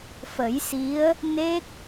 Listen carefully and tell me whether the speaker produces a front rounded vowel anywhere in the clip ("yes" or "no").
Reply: no